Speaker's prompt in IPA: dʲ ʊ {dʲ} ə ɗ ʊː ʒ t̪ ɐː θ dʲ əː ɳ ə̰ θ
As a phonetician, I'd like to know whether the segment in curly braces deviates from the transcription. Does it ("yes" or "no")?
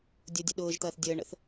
no